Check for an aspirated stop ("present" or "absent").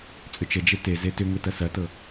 absent